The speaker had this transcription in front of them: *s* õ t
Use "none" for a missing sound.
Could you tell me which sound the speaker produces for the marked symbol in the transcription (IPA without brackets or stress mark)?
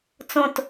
t͡s